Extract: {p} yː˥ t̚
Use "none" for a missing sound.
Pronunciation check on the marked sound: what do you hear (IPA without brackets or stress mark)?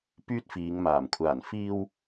p